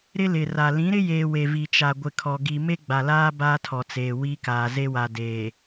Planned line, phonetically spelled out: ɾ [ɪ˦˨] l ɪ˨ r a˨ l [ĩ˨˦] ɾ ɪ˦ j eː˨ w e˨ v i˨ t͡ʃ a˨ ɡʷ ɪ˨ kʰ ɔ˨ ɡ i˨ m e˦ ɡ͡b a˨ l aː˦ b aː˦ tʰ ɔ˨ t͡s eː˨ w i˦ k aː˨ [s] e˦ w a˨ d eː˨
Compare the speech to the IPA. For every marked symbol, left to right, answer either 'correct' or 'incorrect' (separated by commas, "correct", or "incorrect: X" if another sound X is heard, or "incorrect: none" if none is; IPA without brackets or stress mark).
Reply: incorrect: ɪ˦, correct, incorrect: z